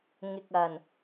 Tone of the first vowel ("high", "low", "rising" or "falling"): low